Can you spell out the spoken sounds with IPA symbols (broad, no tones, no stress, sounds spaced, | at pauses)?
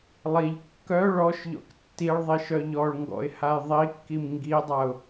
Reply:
lˠ i ʎ kː œ ɭ ɔ ʃ ʎ ɔ̰ k tː i ɭ ðˤ i ʃ œ ʎ ɔ ɭ ŋ ɡ ɔ̰ ɪ̯ h a j ðˤ i kː i m ŋ ɡ i dˤ a ʊ̯